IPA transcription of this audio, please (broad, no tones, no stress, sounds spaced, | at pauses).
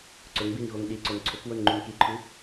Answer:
ǀ ɵ ŋ b i n ɣ o ŋ ɗ i ǀ o n ǀʰ ɵ k w o n ŋ͡ǃ ʉ n k i ǃʰ ʉ